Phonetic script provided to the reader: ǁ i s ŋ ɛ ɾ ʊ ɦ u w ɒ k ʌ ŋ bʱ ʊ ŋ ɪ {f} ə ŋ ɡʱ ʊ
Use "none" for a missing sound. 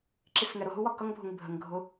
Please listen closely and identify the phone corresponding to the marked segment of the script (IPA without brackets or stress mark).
bʱ